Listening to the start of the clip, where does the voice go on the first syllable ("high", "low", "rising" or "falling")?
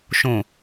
low